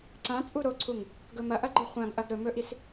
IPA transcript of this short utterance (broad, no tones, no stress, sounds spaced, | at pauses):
ǀ ã t͡sʼ u ɾ o ǀʰ u ŋ | ɡ ɵ m ɐ ʔ ɐ ɡ͡ǃ ɨ χʷ ã ɡ ʔ ɐ ɡ ɾ ɵ m ɵ ʔ i s